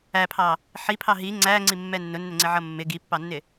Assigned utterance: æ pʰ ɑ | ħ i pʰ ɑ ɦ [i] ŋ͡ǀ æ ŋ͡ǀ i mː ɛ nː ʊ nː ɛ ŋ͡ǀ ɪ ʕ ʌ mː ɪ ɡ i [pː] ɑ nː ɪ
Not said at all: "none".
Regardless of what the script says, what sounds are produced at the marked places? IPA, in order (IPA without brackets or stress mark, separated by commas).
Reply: i, pː